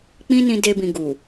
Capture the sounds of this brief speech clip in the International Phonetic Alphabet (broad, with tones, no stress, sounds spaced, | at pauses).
k͡p ĩ˦ n ĩ˧ d e˧ b ĩ˨ ɡ u˨